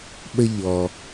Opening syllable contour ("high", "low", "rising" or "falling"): high